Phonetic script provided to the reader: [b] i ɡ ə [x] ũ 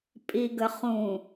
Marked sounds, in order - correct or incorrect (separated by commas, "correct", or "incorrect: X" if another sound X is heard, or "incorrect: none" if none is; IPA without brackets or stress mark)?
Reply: incorrect: pʼ, incorrect: χ